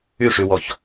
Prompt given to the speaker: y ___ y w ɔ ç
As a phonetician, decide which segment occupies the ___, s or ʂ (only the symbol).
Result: ʂ